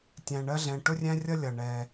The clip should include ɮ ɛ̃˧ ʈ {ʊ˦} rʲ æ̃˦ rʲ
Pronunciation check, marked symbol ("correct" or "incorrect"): correct